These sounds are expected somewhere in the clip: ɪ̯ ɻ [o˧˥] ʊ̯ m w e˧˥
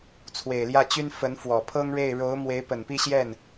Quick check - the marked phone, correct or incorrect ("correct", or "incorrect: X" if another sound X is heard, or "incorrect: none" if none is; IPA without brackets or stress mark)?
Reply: correct